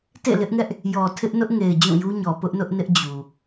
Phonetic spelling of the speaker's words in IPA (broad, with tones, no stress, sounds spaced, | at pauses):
t ḛ˦˨ l ɪ˦ ʔ ŋ ɛ˦ ʔ | j ɔ˨ tʰ ɪ˦ ʔ n ʊ˦ ʔ ŋ e˨ ɪ̯ d͡ʑ ũ˦˨ j u˦ ɲ ɔ˨ p ʊ˦ ʔ n ʊ˦ ʔ n ɪ˦ ʔ d͡ʑ u˨